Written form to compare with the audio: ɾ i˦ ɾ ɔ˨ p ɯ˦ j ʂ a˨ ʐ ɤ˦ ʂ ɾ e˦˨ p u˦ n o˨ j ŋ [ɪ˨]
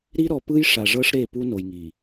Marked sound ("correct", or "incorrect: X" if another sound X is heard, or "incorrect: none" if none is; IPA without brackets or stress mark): incorrect: i˨